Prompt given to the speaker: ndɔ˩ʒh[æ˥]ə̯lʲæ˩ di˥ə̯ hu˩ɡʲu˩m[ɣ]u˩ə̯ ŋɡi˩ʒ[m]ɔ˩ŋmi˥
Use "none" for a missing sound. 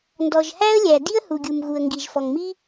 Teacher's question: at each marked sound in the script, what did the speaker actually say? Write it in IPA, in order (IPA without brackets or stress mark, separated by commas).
æ˥, ɣ, f